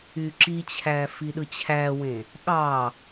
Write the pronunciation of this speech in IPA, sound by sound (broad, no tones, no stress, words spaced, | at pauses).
yǁit͡ɕʰæ fiɗɯt͡ɕʰæwẽ | ɠɑ